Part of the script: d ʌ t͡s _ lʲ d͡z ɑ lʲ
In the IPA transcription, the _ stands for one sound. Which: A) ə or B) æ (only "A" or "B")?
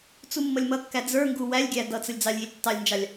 A